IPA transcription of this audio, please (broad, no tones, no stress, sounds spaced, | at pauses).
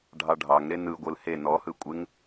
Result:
ɖʱ ɑ ɖʱ ɑ ŋ ɾ e n ɯ ɡʷ ɯ l h e n ɔ h ɯ kʷʼ ɪ ŋ